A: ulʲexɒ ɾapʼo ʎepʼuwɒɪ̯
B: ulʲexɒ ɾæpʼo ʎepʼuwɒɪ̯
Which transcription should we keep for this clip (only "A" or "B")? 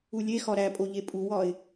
B